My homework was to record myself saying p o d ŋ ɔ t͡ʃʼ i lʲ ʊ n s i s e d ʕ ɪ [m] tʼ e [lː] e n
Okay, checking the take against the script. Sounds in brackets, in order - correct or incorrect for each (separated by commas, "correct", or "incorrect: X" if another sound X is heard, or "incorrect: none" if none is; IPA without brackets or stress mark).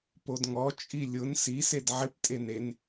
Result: incorrect: p, incorrect: n